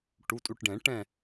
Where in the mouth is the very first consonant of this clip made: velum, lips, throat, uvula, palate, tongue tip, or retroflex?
retroflex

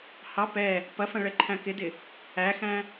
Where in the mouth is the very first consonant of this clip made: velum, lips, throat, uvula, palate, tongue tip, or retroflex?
throat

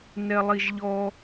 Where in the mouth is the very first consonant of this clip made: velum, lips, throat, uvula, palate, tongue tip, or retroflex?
tongue tip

